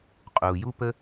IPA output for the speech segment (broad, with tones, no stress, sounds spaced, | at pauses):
qʼ uː˨ j u˦ p ə˦